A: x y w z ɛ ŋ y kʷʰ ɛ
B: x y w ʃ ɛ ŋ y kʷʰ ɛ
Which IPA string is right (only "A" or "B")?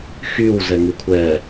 A